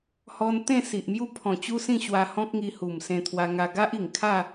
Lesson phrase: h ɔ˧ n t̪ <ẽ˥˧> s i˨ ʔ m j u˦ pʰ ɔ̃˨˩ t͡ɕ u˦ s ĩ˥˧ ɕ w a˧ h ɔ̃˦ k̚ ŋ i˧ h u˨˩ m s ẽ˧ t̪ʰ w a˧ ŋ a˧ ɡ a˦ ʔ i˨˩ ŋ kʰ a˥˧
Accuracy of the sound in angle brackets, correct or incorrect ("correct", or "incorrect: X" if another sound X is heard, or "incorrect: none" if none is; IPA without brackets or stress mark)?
correct